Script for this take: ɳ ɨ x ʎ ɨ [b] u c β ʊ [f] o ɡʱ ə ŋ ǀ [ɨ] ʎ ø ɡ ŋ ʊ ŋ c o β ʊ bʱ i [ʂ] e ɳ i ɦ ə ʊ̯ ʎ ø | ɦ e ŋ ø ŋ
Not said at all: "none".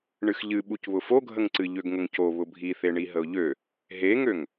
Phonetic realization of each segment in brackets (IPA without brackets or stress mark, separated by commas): ɓ, f, ɨ, θ